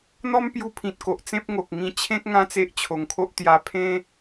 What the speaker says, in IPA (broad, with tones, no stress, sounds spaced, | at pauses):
n̪ ɔ˦ m p j u˧ pʰ ĩ˨ t̚ k o˨ ʔ t͡s ẽ˦ p̚ ŋ o˨ k̚ ŋ ĩ˧ t͡ɕʰ ẽ˦ k̚ ŋ ã˦ t͡s e˦ ʔ t͡ɕʰ o˧ ŋ kʰ o˦ ʔ t̪ j a˧ pʰ ẽ˦